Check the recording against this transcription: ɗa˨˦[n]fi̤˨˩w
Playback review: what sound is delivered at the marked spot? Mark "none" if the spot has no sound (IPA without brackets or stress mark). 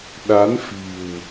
n